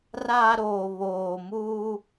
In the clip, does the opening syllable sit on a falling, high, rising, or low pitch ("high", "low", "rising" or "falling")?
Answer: low